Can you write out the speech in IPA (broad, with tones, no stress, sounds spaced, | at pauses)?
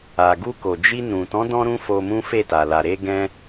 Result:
a˨ ɡ u˧ k o˨ d͡ʒ i˧ n ũ˨ t ɔ̃˨˦ d ɔ̃˧ ɾ ũ˧ f o˧ m ũ˦ f e˦˨ t a˨ l a˨ ɾ e˧ ɡ ɛ̃˧